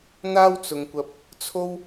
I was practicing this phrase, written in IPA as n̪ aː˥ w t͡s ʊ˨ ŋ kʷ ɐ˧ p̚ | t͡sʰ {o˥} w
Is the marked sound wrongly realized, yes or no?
no